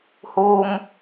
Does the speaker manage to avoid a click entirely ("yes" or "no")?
yes